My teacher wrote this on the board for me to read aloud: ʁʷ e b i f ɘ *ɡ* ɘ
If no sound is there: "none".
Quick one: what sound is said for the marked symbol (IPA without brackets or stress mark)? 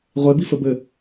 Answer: b